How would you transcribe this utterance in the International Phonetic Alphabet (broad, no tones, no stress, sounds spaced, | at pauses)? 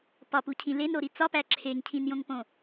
p ɒ p u cʰ ĩ l e n ɾ o ɾ i t͡s ɒ p æ ǁʰ e ŋ cʰ ĩ n j õ ŋ p õ